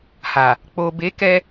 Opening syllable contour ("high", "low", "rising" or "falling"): low